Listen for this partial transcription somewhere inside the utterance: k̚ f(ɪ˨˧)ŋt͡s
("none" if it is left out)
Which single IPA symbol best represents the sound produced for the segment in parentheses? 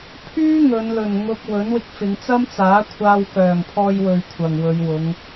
ɪ˨˧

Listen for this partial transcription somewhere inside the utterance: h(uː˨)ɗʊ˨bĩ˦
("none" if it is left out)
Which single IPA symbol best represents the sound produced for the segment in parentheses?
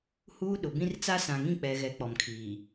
uː˦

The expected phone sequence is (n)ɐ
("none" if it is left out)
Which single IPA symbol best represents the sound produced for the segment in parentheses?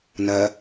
n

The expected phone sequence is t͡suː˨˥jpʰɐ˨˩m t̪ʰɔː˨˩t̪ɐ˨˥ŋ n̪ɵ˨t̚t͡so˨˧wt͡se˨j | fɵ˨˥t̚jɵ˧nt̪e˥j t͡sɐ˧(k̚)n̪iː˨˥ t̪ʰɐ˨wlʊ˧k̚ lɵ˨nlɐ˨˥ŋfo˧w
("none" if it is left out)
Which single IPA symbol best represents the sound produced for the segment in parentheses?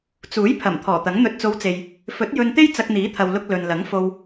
k̚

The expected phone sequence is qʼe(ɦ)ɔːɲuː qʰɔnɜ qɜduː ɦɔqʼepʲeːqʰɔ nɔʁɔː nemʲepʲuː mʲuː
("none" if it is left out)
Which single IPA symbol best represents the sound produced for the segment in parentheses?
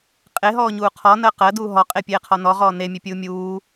ɦ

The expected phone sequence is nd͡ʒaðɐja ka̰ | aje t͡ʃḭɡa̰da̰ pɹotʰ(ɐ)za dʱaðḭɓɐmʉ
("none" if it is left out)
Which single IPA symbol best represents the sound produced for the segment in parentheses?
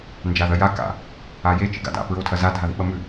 ɐ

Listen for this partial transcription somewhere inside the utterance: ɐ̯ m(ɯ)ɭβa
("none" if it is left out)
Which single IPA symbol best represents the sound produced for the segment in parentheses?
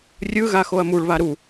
u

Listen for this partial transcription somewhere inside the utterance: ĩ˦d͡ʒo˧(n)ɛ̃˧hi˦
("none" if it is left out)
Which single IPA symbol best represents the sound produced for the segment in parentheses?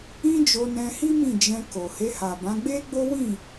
n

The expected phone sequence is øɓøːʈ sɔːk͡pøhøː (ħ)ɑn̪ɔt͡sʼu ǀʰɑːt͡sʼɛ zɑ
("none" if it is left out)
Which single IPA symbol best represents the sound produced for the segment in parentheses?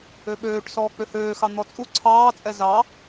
x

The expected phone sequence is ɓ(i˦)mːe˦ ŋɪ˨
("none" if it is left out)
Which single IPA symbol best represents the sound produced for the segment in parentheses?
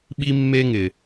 i˦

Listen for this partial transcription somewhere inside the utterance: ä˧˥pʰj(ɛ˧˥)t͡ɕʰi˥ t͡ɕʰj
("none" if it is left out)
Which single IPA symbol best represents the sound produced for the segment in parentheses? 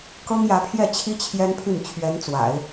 ɛ˥˩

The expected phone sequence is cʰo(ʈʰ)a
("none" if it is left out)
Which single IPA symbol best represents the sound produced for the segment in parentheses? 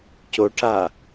ʈʰ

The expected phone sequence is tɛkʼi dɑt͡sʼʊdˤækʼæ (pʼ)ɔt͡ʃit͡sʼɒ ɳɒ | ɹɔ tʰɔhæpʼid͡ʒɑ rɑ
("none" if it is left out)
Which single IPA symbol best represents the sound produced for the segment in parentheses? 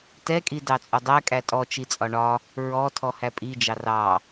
tʼ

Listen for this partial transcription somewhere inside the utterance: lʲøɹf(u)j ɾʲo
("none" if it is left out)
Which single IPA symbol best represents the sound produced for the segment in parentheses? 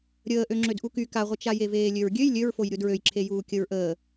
o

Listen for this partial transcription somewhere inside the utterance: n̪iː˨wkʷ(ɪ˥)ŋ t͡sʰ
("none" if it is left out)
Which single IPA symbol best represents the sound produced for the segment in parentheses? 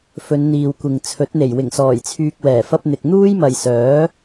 ɪ˨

